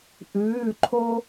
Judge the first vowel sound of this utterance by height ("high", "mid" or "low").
high